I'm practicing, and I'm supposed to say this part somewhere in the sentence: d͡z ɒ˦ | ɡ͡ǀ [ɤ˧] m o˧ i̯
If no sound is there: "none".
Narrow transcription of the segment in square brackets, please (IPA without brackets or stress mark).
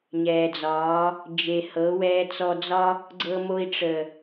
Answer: ɤ˧